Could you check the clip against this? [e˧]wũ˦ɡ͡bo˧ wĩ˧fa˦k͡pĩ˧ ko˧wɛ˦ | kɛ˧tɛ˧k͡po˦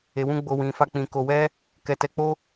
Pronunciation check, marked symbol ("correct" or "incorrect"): correct